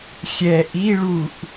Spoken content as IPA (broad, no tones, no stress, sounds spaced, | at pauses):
xʲ ɛ ʔ i ɭ u ʔ